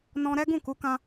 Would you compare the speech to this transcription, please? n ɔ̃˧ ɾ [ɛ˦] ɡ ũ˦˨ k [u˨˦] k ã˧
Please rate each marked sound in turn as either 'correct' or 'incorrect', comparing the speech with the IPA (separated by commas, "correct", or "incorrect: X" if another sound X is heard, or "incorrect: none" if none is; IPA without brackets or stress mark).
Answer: correct, correct